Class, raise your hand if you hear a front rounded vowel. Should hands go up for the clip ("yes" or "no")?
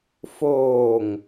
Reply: no